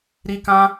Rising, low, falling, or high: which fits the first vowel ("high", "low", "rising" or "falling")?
high